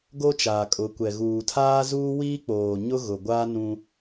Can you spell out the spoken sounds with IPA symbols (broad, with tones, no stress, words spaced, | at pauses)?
ɡo˦t͡ʃaː˨kʼʊ˨˦kʷɛ˨ ɣuː˨tʰaː˦ zuː˦wiː˦k͡poː˨ ɲʊ˦ɣʊ˨ɡʷaː˦ nũ˦